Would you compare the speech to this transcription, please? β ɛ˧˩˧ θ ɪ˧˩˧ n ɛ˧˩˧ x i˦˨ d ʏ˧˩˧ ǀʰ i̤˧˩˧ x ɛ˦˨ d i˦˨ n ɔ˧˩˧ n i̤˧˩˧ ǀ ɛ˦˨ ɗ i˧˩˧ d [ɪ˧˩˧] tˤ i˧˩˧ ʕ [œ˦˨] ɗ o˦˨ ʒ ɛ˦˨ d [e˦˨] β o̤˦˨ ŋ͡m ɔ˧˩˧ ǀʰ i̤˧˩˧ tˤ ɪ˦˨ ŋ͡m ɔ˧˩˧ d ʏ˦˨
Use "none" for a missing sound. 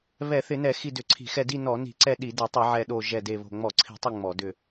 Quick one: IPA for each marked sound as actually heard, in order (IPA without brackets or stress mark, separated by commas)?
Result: ɛ˧˩˧, ɛ˦˨, e˦˨